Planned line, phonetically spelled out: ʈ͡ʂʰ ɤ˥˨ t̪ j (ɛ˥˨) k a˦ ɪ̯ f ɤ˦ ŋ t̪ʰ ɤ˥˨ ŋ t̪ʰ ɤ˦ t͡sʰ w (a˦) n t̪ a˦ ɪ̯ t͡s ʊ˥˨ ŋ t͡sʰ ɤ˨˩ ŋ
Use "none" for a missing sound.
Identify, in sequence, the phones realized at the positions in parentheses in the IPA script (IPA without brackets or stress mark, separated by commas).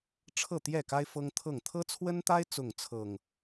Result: ɛ˥˨, ə˦